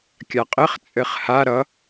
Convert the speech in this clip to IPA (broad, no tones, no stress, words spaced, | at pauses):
kʲaqʼɘχt͡sʼɘχ ha ɾʌ